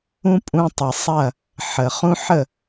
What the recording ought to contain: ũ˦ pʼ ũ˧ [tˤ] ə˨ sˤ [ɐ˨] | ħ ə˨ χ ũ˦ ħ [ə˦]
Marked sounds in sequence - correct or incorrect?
correct, incorrect, incorrect

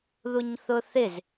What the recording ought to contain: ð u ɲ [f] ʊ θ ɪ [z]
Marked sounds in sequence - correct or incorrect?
incorrect, correct

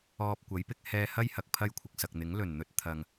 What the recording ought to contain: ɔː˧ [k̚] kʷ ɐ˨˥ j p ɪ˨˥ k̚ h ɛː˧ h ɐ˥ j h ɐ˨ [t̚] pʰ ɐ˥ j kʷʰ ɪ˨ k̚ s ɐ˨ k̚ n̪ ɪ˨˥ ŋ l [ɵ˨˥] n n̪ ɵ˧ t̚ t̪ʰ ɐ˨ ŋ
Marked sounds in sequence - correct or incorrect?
incorrect, incorrect, incorrect

